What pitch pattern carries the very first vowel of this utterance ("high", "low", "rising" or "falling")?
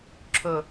low